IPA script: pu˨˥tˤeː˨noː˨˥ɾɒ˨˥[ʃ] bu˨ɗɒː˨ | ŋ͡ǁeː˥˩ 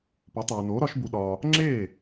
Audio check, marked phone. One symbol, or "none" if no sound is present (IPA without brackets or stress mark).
ʃ